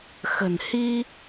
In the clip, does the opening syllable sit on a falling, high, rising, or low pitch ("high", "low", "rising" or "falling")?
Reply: low